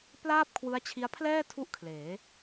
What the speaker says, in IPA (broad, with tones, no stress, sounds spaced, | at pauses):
p l aː˥˩ p̚ kʰ w ɯ˦˥ a̯ t͡ɕʰ i˦˥ a̯ pʰ l ɛː˥˩ tʰ u˥˩ ʔ kʰ l eː˩˦